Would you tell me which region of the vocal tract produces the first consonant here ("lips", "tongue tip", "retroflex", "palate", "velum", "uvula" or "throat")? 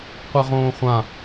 uvula